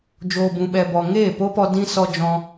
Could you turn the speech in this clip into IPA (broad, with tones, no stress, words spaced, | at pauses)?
d͡ʒoː˨bũ˨ɓɛ˨bɔ˨ ŋeː˦˨po˦pɔ˧ dĩ˦sɔ˧d͡ʒɔ̃˧